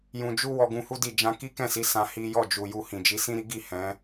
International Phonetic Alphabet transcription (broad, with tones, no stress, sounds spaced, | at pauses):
j ũ˨ d͡ʒ u˧ w ɔ˧ ɡ ũ˧ h u˦ d i˦˨ d͡ʒ ã˧ k i˦ k ɛ̃˦˨ s i˨˦ s ã˧ h i˦ j ɔ˦˨ d͡ʒ u˨ j u˧ h ĩ˨ d͡ʒ i˨˦ s ĩ˦ ɾ i˦ ɡ i˦˨ h ɛ̃˨˦